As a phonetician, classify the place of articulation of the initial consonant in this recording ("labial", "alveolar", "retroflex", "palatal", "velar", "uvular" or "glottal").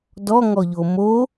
alveolar